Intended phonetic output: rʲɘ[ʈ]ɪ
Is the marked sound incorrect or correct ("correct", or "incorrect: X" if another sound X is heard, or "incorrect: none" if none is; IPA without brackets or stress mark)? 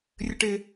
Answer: correct